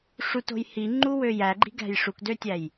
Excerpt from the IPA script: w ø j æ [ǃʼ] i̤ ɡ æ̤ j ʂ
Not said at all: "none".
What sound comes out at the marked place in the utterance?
ɡ͡ǃ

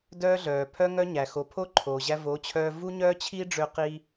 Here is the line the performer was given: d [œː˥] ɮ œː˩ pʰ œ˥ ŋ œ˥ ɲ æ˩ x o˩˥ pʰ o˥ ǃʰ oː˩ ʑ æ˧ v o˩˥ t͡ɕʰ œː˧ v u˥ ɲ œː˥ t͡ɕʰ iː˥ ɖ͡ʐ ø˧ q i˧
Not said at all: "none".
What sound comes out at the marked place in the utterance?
œː˥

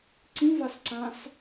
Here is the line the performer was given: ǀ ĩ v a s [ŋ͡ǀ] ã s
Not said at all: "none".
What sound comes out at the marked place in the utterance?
ǀ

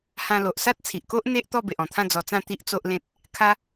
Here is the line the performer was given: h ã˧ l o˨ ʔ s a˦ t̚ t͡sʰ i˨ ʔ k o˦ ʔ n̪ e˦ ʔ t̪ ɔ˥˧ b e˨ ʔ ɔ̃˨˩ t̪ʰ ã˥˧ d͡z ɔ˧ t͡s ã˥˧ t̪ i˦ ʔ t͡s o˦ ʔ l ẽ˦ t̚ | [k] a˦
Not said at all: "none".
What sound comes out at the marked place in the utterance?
kʰ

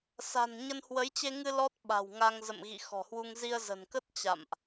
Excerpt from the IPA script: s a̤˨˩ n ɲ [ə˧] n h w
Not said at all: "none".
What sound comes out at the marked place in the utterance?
ə˧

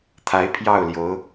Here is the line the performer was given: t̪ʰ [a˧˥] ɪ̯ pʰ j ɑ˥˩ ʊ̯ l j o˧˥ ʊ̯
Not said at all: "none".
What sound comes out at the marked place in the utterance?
a˧˥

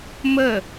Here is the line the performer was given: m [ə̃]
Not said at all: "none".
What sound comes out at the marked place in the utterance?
ə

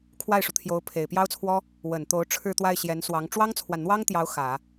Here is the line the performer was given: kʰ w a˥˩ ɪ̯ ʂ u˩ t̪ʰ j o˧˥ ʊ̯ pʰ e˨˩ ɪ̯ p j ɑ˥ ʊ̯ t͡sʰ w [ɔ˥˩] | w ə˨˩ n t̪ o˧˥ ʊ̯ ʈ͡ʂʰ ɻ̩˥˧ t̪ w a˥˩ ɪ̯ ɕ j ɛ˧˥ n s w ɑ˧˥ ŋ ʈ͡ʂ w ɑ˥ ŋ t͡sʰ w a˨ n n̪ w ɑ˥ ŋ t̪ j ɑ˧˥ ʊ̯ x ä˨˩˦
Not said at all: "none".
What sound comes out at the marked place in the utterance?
ɔ˥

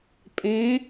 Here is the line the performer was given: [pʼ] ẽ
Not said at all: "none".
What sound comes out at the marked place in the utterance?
pʼ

